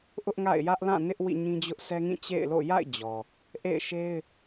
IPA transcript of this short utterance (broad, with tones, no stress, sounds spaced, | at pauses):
ʔ ʊ˦ ʔ ŋ a̰˦˨ ɪ̯ j ä˦ ʔ l ã˦˨ n ɪ˦ ʔ w ḭ˦˨ ɲ ĩ˦ d͡ʑ ʊ˦ ʔ sʰ ɛ˦ ŋ ĩ˦˨ t͡ɕ ḛ˦˨ ɪ̯ l o̰˦˨ j a̰˦˨ ɪ̯ d͡ʑ ɔ˨ | ʔ ḛ˦˨ ɪ̯ ʃ e˦ ɪ̯